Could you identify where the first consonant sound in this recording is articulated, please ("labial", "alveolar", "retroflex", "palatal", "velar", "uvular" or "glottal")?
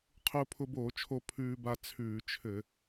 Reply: uvular